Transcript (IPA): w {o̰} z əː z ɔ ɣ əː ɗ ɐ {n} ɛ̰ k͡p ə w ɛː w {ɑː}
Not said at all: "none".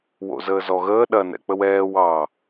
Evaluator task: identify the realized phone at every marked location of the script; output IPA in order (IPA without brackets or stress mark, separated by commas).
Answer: o̰, n, ɑː